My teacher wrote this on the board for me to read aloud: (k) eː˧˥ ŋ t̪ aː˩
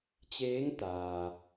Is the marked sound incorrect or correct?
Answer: incorrect